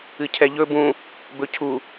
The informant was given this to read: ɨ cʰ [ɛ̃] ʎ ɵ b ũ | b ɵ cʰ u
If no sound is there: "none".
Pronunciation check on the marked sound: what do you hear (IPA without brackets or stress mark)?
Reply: ɛ